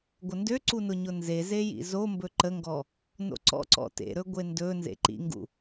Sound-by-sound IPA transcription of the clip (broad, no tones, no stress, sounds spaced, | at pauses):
ɡʷ ə n d ø ǀ u n ʊ ɲ ʊ n z e z e j ḭ z o m b ɵ ǃ ə ŋ ɡ ɔ | n o̰ ǀ ɔ̰ ǀ ɔ̰ t ḛ ɾ ɵ ɡʷ e n d ɵ n z ḛ ǃ ḭ ŋ ɡ ṵ